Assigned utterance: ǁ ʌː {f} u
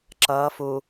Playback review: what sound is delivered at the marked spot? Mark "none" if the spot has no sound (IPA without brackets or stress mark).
f